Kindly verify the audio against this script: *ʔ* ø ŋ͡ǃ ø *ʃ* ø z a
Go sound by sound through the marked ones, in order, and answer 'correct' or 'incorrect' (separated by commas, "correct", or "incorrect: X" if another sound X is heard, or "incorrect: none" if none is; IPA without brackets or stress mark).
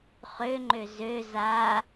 incorrect: χ, incorrect: z